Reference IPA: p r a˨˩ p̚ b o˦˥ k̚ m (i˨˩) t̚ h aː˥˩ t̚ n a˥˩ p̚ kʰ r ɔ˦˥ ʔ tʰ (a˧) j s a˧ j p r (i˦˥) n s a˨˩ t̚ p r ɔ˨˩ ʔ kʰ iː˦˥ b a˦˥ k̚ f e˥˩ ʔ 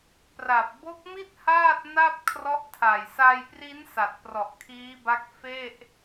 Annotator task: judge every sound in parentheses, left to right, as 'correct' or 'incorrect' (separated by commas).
incorrect, incorrect, correct